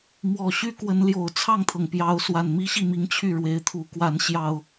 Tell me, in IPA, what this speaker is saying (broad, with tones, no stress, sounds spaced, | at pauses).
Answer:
m w ɔ˨˩ ɕ y˦ k w ə˨˦ n l j o˨˩ ʊ̯ t͡sʰ ɑ˥˨ ŋ t̪ʰ ɤ˩ ŋ p j ɑ˨˦ ʊ̯ s w a˨˩ n m i˦ ɕ i˥˨ m i˦ ŋ t͡ɕʰ y˥˨ ɻ w e˨˦ ɪ̯ t̪ʰ u˨˦ k w a˨˦ n ɕ j ɑ˨˩ ʊ̯